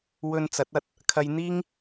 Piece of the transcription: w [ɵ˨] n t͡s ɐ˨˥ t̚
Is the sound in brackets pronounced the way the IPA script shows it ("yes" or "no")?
no